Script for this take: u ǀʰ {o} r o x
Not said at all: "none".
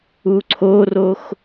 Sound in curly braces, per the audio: o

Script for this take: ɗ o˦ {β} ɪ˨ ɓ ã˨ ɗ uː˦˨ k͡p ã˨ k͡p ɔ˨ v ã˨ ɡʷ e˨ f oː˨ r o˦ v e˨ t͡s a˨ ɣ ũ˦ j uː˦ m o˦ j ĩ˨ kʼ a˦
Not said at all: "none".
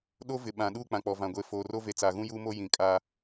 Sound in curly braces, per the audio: v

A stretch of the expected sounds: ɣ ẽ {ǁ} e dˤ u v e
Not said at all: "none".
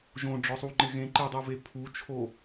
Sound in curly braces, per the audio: ǃ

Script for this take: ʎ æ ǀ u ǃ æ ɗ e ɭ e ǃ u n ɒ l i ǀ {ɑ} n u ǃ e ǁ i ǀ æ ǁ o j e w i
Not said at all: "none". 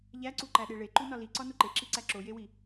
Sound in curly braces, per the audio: ɒ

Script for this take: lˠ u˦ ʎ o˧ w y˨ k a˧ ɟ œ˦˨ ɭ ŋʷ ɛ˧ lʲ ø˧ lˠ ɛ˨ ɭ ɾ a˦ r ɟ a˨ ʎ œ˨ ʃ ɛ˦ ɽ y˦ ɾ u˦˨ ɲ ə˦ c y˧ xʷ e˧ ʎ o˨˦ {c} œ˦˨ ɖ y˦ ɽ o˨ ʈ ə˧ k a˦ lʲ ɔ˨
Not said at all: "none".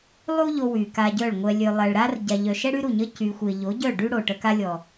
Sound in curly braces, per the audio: ɟ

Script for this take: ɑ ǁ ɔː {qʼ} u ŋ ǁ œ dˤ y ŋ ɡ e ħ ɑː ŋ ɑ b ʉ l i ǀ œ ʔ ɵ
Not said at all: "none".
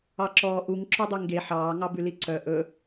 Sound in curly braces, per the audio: ʔ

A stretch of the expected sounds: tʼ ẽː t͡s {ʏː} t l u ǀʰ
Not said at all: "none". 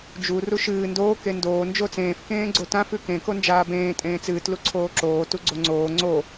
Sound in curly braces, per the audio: ɨː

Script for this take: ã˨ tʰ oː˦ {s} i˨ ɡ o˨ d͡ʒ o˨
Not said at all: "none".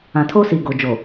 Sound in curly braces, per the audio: s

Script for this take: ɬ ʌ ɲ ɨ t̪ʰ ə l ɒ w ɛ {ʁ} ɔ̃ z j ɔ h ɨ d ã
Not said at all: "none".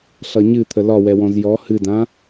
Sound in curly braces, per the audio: w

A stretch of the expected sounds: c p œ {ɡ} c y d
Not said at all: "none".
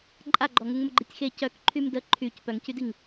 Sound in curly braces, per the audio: ŋ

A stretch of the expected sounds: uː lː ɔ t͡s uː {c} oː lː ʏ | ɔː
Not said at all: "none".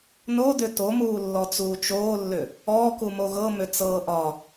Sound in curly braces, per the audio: t͡ʃ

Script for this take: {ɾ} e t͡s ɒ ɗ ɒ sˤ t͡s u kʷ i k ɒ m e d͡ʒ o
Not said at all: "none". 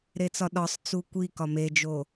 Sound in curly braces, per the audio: ɾ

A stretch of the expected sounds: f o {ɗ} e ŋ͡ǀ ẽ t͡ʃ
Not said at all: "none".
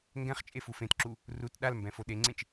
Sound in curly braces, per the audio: ɗ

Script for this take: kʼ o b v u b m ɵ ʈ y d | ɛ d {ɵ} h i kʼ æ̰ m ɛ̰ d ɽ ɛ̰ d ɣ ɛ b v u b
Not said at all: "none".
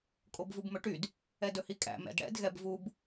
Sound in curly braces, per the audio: ɵ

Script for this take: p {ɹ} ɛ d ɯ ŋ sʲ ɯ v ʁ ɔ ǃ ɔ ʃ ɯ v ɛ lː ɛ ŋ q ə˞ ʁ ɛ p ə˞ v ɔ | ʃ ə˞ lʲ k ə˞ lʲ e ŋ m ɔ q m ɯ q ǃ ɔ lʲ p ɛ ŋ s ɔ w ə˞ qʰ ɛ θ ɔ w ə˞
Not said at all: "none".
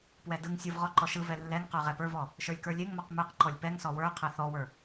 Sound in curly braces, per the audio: w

